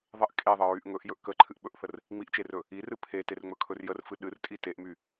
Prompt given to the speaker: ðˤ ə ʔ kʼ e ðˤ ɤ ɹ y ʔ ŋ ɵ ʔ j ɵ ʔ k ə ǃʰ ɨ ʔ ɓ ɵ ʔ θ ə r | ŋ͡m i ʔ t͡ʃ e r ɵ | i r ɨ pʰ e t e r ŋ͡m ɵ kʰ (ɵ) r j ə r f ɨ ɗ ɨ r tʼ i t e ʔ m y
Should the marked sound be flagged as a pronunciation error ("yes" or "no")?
no